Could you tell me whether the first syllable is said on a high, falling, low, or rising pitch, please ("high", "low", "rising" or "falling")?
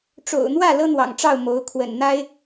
low